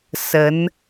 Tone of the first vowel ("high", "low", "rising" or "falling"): rising